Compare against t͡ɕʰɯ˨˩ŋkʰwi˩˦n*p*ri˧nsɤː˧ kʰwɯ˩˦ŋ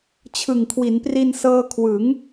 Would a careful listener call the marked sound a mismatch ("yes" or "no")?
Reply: no